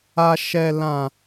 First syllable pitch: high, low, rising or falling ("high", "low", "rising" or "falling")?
low